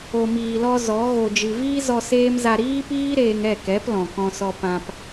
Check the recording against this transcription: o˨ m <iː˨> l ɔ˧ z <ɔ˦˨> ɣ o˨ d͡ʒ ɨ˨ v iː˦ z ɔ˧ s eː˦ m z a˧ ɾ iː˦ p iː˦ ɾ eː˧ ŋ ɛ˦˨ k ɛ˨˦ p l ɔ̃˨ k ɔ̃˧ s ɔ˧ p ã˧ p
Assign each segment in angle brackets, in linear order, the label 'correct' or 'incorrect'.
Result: correct, incorrect

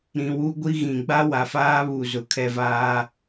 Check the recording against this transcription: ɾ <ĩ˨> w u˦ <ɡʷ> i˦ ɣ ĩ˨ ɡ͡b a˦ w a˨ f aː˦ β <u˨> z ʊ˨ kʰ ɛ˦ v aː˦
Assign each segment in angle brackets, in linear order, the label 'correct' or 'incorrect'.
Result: correct, correct, correct

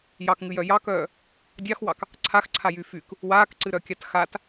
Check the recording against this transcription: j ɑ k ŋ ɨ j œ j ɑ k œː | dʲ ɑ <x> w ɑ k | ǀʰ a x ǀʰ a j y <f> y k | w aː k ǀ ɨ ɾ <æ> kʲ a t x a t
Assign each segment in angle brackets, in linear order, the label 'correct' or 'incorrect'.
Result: correct, correct, incorrect

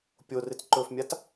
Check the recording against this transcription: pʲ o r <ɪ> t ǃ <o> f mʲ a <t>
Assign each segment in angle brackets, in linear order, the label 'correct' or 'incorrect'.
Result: correct, incorrect, correct

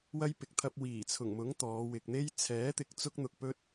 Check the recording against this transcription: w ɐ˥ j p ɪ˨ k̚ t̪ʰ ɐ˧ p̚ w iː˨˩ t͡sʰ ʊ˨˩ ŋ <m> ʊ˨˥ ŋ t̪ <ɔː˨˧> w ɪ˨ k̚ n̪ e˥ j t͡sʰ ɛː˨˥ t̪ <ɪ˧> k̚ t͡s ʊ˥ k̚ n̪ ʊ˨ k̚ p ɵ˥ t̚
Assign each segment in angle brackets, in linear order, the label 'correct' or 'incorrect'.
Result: correct, correct, incorrect

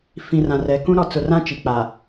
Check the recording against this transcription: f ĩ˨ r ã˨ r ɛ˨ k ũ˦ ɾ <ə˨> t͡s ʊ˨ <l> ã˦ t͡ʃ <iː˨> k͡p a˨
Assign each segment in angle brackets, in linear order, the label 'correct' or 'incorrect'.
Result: incorrect, incorrect, incorrect

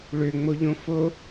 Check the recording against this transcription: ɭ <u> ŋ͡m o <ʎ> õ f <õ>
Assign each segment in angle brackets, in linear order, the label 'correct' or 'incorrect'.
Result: incorrect, correct, incorrect

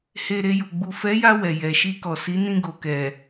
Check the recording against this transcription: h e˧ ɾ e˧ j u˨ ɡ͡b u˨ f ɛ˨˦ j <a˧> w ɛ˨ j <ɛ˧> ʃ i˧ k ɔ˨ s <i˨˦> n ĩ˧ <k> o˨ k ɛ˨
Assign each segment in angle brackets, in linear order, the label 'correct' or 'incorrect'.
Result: correct, incorrect, correct, incorrect

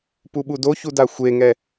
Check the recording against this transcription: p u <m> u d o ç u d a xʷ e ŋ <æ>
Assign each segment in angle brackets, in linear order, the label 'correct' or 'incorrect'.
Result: incorrect, incorrect

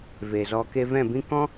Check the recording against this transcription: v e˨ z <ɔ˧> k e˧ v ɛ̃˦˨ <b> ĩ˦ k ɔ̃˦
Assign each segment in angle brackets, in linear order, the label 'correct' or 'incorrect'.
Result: correct, correct

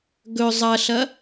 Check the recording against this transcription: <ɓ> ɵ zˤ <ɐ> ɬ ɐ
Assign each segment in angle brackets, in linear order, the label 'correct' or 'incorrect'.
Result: incorrect, correct

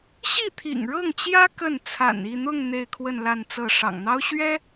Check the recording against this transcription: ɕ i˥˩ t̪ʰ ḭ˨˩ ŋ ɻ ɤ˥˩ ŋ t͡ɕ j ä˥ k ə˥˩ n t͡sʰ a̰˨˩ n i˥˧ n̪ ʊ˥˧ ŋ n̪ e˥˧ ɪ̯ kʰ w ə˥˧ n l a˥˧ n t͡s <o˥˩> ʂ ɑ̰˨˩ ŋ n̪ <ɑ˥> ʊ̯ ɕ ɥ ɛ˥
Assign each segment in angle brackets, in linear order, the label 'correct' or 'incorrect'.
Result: incorrect, correct

